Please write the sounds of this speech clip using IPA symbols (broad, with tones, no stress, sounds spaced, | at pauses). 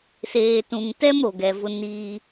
s eː˨ t ũ˨ ŋ t ɛ˦ m ɾ o˨ ɡ ɛ˨ v ʊ˦ n iː˦